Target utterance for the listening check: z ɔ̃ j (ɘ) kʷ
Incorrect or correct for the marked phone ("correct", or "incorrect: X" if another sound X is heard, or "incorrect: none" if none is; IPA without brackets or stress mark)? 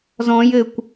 correct